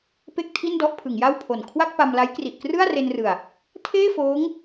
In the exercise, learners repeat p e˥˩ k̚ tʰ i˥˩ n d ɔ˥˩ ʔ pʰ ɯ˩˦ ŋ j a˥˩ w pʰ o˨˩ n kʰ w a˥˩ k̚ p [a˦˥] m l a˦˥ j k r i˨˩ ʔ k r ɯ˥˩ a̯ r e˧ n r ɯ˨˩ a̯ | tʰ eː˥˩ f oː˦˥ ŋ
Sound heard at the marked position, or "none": a˧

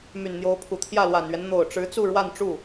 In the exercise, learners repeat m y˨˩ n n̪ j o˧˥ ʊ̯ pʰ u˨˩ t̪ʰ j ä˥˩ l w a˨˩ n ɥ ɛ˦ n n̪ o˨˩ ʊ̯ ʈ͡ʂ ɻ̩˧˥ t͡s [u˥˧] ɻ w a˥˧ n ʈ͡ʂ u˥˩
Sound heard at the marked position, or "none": u˥˧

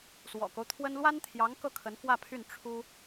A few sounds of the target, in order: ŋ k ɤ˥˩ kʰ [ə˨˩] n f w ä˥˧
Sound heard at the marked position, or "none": ə˧˥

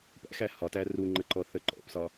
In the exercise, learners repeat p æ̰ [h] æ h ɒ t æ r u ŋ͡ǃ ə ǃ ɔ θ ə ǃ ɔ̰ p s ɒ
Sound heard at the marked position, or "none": x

